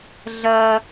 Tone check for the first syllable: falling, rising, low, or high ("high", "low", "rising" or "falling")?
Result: high